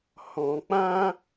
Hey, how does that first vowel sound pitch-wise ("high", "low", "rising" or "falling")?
low